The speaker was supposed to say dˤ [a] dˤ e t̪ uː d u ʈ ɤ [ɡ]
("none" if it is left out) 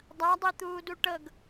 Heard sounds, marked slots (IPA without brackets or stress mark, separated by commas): a, ɡ